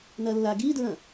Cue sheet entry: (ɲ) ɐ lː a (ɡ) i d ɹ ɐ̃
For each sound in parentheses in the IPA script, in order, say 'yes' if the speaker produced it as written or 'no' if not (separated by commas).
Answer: no, yes